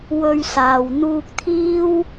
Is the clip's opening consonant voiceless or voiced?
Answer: voiced